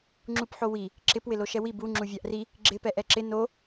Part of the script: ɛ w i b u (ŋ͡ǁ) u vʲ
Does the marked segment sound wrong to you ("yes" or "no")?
no